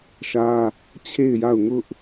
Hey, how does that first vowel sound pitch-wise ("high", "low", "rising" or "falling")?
high